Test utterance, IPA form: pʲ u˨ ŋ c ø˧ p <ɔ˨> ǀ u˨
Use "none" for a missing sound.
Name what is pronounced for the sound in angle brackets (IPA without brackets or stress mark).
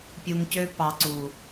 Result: ɑ˨